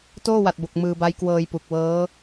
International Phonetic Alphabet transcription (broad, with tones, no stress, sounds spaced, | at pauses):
t oː˥˩ w a˨˩ t̚ b o˨˩ k̚ m ɯː˧ b a˦˥ j k w ɤː˧ j p u˨˩ k̚ w ɤː˦˥